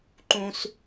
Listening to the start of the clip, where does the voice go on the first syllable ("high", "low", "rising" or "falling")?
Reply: high